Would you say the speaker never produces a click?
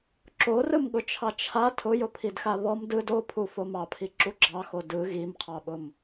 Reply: no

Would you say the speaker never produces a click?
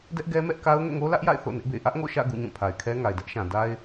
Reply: yes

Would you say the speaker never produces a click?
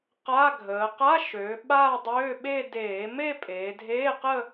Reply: yes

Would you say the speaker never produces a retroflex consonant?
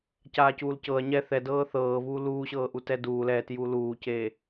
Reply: yes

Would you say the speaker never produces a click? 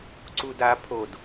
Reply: no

